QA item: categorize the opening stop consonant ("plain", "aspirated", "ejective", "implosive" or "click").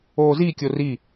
plain